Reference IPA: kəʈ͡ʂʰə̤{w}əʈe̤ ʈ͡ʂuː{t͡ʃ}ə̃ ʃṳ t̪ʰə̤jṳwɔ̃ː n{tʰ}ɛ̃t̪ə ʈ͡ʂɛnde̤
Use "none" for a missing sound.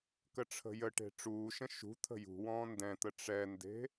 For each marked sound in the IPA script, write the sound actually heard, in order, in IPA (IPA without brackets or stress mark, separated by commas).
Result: j, ʃ, d